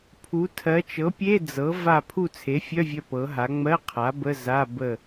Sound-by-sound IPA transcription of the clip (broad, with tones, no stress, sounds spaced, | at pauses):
pʰ u˩˧ tʰ ɜ˩˧ t͡ʃ ɤ˩˥ pʲ e˧˥˧ d͡z ɤ˩˥ v a˥˨ pʰ u˥˨ t͡sʰ e˩˥ fʲ œ˧˥˧ vʲ œ˧ p ɤ˩˥ ɦ a˩˥ ŋ͡m ɜ˧˥˧ qʰ a˩˥ b ə˧˥˧ z a˧˥˧ b ə˥˨